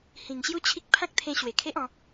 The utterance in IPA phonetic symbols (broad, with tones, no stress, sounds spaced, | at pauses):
h ĩ˨˩ ŋ ɕ j u˦ t͡ɕʰ i˦ k̚ pʰ ã˦ k̚ t̪ʰ ẽ˧ ɕ w e˨˩ kʰ e˦ ʔ ɔ̃˨˦